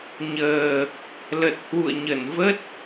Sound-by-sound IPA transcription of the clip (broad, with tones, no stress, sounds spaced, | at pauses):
ɲ əː˨˩ | l ə˨˩ t̚ h w ṵ˧˨ ə̯ ɲ ə˧˩ n v ə˦˥ t̚